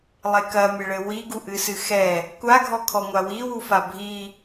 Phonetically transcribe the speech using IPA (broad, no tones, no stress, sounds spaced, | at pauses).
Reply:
lˠ e k ɐ mʲ ɘ ɭ ɘ w i ɡ u ʔ ɨ s ɨ x ɛ | kʷ a ɡʱ ɔ kʰ ɔ ŋʷ a w i w u f a bʱ i